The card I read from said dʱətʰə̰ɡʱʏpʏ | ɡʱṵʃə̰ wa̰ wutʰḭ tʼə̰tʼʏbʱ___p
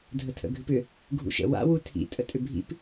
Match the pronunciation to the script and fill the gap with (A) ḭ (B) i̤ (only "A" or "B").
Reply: A